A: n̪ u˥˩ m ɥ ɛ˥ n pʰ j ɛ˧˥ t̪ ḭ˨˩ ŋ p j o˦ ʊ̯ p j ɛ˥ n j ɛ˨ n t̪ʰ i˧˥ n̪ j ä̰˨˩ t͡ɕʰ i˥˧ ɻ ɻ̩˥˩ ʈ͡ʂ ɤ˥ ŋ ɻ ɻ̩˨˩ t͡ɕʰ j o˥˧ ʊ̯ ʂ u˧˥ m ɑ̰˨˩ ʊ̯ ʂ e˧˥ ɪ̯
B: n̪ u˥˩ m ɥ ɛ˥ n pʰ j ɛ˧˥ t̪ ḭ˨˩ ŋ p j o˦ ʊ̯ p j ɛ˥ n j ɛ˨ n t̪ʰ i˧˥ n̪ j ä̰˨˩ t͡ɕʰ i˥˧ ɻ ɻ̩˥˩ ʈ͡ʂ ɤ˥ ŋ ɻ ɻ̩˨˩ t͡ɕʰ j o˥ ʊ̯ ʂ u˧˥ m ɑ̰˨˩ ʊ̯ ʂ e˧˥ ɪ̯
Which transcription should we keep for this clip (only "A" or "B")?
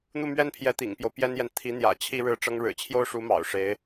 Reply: B